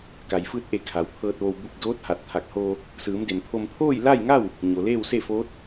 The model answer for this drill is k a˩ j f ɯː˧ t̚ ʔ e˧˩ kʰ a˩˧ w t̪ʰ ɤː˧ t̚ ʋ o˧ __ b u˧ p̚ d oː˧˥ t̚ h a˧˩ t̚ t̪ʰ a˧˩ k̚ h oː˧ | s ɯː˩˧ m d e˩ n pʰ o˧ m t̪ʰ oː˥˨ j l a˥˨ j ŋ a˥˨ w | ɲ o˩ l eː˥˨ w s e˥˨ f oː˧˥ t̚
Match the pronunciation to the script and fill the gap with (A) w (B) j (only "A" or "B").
A